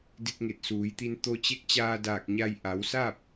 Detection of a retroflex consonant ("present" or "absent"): absent